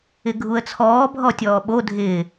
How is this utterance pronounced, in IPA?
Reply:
ɪ ɡʱ u ə̯ t͡sʰ ɔː bʱ ɔ tʲ ɔː ɓ o dʱ ɪː

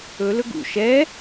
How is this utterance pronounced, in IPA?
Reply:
ɵ l ɵ ɡ ṵ ʃ ɛ

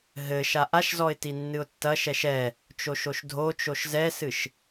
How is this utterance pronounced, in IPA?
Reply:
ɦ ɘ ʃ a ʔ a ʃ z ɔ ɪ̯ t i nː ɨ ʊ̯ tː ɐ ʃ ɛ ʃ ɛ | t͡ʃ o ʃ o ʃ dʱ o t͡ʃ o ʃ z ɛ s ɨ ʃ

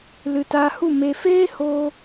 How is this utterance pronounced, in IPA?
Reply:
l ɨ˨ t aː˧ h u˦˨ m e˨ f eː˦ h oː˧

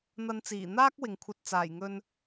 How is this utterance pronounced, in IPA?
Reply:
n̪ ɐ˨˧ n t͡s iː˨˩ n̪ aː˥ k̚ w ɪ˨ ŋ kʷʰ ɐ˧ t̚ t͡s aː˨˩ j ŋ ɵ˧ n

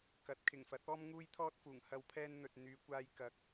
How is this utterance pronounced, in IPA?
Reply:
k ɐ˨˥ t̚ kʰ ɪ˨˩ ŋ f ɐ˨˥ t̚ ɔː˥ m ŋ uː˥ j t̪ʰ ɔː˥ t̚ f uː˨˩ ŋ h ɐ˨ w pʰ ɛː˧ n n̪ ɵ˨ t̚ n̪ yː˨˧ kʷ aː˧ j k ɐ˨ k̚

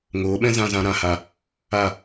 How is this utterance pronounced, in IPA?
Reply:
ŋ oː˨˦ ɓ ɛ̃˦ z ã˧ z ã˧ ɾ ã˧ h a˧ | a˦˨

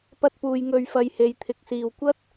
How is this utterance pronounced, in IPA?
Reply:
p ɐ˥ t̚ p uː˧ j ŋ ɵ˧ ɥ f ɐ˧ j h e˨˧ j t̪ʰ ɪ˨ k̚ s iː˨ w kʷ ɐ˥ t̚

